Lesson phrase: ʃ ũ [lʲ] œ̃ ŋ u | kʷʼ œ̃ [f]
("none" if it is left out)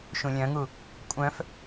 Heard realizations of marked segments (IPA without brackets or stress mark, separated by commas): lʲ, f